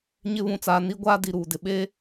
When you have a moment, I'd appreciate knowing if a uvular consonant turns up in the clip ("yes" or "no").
no